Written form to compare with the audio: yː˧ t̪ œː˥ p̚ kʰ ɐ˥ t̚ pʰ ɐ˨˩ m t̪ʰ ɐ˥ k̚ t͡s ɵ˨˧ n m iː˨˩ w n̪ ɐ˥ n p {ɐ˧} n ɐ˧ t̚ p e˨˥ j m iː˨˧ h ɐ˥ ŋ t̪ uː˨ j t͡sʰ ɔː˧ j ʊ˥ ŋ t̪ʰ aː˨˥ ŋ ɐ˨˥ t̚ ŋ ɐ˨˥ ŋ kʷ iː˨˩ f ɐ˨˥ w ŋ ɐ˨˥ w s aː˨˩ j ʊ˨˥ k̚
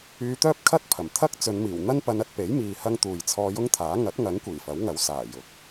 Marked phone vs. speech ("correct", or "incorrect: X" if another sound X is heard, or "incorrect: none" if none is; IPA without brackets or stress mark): correct